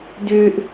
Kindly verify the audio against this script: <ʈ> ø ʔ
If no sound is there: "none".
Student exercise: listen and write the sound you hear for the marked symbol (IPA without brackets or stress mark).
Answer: d